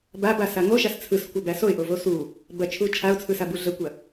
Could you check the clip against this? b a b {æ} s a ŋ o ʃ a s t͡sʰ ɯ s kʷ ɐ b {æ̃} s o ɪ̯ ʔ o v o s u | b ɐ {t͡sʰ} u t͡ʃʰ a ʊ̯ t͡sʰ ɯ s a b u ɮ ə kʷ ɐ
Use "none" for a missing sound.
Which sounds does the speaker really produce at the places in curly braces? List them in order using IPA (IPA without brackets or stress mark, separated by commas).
a, æ, t͡ʃʰ